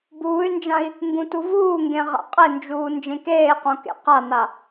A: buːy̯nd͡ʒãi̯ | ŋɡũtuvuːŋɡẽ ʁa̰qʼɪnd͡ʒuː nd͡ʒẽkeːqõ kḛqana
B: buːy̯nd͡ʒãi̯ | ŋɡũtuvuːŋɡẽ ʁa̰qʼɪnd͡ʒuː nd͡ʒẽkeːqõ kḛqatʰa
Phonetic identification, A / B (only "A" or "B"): A